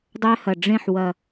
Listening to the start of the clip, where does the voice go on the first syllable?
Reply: high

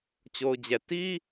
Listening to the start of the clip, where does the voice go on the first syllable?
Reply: low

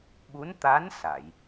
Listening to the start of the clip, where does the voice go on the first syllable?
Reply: rising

